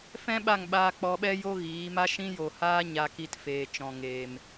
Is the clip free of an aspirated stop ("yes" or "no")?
yes